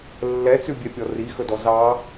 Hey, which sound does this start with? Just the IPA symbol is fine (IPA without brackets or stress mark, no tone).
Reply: lː